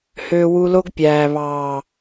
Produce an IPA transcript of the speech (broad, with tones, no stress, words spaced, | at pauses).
hø˦wu˦ lo˦ɡpʲæː˨βɑː˨